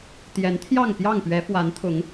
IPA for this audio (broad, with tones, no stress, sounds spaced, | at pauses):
t̪ j ɛ˨˦ n t̪ʰ j ɑ˥˨ ŋ p j ɑ˥˨ ŋ p ɥ ɛ˨˦ f w a˨˦ n t̪ʰ ʊ˨˦ ŋ